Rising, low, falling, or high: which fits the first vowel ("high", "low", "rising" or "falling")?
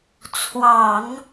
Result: low